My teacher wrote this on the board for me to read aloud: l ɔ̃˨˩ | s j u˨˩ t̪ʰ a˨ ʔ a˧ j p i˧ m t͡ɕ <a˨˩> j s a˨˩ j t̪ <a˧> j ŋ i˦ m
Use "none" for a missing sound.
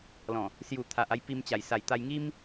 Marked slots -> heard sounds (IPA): a˨˩, a˧

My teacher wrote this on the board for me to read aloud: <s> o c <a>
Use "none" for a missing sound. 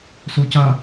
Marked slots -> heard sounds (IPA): s, a

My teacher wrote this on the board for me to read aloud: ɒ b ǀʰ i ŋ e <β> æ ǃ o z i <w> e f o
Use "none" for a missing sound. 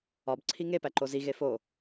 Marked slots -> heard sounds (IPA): p, ɣ

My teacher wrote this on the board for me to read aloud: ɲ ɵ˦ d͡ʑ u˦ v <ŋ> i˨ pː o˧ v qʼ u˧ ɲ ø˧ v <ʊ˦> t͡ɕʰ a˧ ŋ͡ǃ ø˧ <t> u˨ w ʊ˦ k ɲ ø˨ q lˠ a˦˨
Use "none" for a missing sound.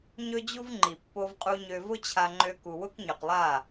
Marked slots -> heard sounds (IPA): ŋ͡ǃ, ʊ˦, k

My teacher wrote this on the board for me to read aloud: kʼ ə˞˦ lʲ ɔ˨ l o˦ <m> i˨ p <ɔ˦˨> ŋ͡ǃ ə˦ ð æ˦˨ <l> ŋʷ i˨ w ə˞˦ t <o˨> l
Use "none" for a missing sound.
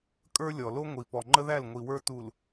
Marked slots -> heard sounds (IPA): ŋʷ, ɔ˨, l, u˨

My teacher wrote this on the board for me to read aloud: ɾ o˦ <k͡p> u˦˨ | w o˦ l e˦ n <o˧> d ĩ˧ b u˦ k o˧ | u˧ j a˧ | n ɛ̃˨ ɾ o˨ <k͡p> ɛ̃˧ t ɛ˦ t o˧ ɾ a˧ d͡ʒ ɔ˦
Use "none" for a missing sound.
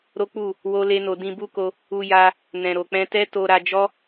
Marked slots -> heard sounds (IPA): k͡p, o˧, k͡p

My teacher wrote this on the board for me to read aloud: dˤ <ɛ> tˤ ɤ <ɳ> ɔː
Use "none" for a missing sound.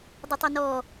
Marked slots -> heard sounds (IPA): ɛ, n

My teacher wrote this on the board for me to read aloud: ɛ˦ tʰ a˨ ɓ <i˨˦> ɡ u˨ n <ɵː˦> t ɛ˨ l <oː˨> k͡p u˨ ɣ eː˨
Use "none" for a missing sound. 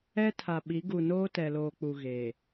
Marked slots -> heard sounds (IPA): i˨˦, oː˦, oː˨

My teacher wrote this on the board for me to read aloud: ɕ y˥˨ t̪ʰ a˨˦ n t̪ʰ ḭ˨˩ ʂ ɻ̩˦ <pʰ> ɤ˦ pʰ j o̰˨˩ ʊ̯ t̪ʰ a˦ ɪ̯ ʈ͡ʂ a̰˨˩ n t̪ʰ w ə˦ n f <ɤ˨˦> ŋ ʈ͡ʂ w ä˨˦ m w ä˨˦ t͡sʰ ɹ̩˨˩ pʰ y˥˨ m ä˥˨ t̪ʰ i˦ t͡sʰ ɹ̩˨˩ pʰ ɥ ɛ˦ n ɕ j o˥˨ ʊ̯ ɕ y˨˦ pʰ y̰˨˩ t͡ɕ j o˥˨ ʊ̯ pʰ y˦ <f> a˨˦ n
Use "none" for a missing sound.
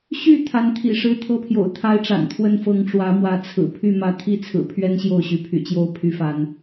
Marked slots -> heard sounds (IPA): t̪ʰ, ɤ˨˦, f

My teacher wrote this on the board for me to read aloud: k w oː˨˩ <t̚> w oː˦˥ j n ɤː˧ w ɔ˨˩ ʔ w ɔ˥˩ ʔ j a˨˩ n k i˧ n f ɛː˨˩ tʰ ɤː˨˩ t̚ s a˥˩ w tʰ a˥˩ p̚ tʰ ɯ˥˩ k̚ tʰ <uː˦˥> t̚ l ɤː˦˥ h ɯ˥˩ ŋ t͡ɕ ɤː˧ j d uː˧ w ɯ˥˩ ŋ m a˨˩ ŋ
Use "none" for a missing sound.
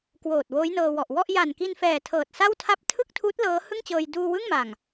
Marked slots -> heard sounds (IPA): t̚, uː˦˥

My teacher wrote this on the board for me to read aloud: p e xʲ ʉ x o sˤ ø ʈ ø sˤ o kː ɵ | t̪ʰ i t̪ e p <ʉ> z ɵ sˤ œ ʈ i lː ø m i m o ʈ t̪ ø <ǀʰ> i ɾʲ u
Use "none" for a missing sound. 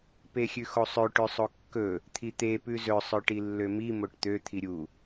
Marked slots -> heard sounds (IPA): ʉ, t̪ʰ

